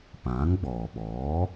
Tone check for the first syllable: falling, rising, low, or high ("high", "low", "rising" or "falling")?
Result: rising